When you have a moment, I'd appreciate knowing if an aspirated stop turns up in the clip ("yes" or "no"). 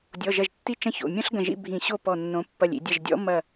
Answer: no